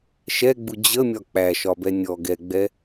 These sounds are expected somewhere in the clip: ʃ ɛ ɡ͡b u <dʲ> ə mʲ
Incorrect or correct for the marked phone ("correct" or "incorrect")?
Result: incorrect